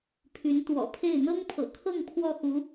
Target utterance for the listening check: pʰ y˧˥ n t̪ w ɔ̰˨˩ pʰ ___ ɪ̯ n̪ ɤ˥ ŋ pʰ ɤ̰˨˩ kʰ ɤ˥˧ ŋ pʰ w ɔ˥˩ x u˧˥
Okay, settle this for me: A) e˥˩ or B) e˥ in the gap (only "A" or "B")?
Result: A